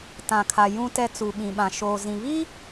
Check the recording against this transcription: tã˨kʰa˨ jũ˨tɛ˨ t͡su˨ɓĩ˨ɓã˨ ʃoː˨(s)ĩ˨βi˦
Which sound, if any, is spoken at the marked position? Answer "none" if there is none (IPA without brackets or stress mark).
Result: z